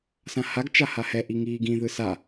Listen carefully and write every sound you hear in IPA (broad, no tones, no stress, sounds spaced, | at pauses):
s ã h a ɡ t͡ʃ a h a h ɛ ʔ i ŋ iː ɡ ĩ ð ɯ s a